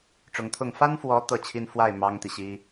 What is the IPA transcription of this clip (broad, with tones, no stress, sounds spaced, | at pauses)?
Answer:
ʈ͡ʂ ʊ˧˥ ŋ t̪ʰ ʊ˥˩ ŋ f a˥ n f w ɔ˧˥ t̪ ɤ˥˩ t͡ɕʰ i˥ n f w a˥˩ ɪ̯ m ɑ˥ ŋ t̪ i˨ ɕ i˥